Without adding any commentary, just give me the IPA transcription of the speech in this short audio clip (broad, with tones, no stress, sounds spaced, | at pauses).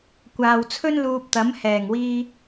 kʷ aː˨ w t͡sʰ ɵ˥ n l uː˧ p̚ t̪ ɐ˨˥ m h ɛː˨˩ ŋ w iː˧